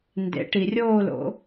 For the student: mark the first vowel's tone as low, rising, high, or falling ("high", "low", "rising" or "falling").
rising